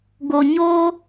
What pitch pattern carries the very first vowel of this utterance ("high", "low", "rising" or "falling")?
low